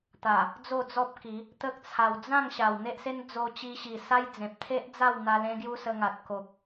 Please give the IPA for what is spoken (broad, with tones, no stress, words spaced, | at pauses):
t̪a˨˩ | d͡zo˥˧d͡zɔ˦p̚ki˨˦ | t̪ə˦k̚t͡sʰa˧w d͡zã˥˧ŋ ɕa˨˩wn̪e˦ʔse˦n d͡zo˧t͡ɕi˧ɕi˨˩ sa˦jd͡zẽ˨p̚ t̪ʰe˦ʔd͡za˥˧wn̪a˧ lẽ˦ɡju˦sə˧ ŋa˨t̚ ko˨k̚